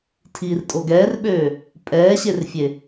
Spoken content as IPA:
tʰ iː r tʼ o ɡ ɛː r ɓ øː | pʼ ɛː ɕ e r fʲ e

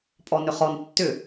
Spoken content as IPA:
pʼ ɔ n ʏ χ ɔ n tː ʏ

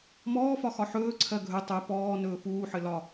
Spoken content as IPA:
m ɔː f ɒ x ɒ ħ ɵː ǀʰ ɜ ɡʱ ɵ tˤ ɵ p ɔː n ɵː f uː ħ ɘ l ɒ

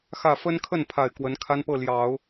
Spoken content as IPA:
x ä˥˩ f ə˥ n kʰ ə˥˩ n pʰ a˨˩ ɪ̯ k w ə˧˥ n kʰ a˥ n p ɤ˥˩ l j ɑ˨˩˦ ʊ̯

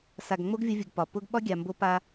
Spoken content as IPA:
s a˨ ɡ ŋ͡m o˦ ɡ vʲ ʊ˦ vʲ u˨ ɡ p ɒ˨ p ʊ˦ ɡ ɓ ɒ˦ ɡʲ a˨ m b o˦ p a˦

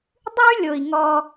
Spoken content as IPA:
dˤ ʉ˦ lʲ o˨ i̯ ŋ ɔ˧

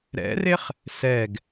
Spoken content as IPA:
ɾ ɛ̰ r e χ | s ɛ ɡ

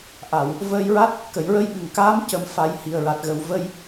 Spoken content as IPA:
ʔ a˨˩˨ w | v əː˧ j ɹ a˦˥ t̚ | k ə˨˩˨ j ɹ ə˧ j ɓ ɨ˨˩˨ ŋ k aː˧˥ m c ə˨˩˦ m f a˨˩˦ j h i˨˩ ə̯ ɹ a˨˩ t̚ ɣ ə˨˩ w v ə˧ j

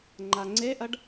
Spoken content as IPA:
ŋ͡ǃ a ŋ͡ǀ e ʔ ɐ ɖ

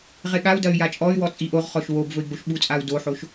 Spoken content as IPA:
ʁ e ɠ a u̯ d ɐ y̯ j a t͡ʃʼ ɔ y̯ w ɔ t͡sʼ i ʔ o ʁ χ ɔ ʃ w o b v ɵ i̯ ɡ͡b o ʃ ɓ u t͡sʼ a u̯ d o ħ o ʃ

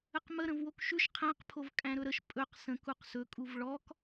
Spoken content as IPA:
ə q m ə ɾ ə̃ v w o k ʃ ʉ ʃ qʰ æ̃ q pʰ o v kʼ æ̃ ɾ ɵ ɾ ə ʃ pʼ ɵ q s ə̃ k u q s ɵ kʼ u v ɭ ɔ k

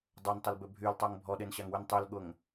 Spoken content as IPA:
dˤ o n tˤ ʊ l b ʏ bʱ y l tˤ o ŋ bʱ ɔ ɗ e n ɕ a ŋ w y n tˤ y l ɠ ʊ ŋ

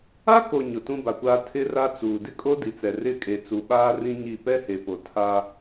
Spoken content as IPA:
a˦ k o˨ ɲ ʊ˨ t ũ˦ b a˨ kʷ aː˦ tʰ ɪ˦ r a˦ t͡s uː˨ d ɪ˦ kʼ o˦ d i˨ t͡s ɛ˨ r ɪ˦˨ kʼ e˨ t͡s u˨ ɓ aː˦ r ĩ˦ ɲ i˦˨ p ɛ˦ h e˨ p o˨ tʰ a˦

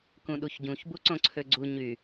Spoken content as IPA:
k ũ ɗ u ç ɟ ũ ç b u ǀ õ ǀʰ ø ɡ͡ǀ u ɲ y

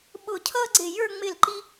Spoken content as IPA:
ɓ ʊ˧˩ cʰ ʌː˥ ɡ͡ǀ ɪ˧˩ j ə˞˥˧ ŋ͡m ɪ˧˩ l ǃ i˥

